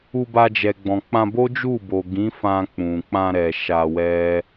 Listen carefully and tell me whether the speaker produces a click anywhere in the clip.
no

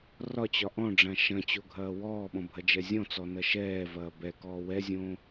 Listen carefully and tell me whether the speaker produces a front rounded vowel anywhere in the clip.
no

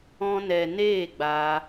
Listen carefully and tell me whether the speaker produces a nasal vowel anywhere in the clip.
yes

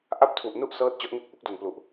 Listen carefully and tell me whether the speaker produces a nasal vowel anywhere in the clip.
no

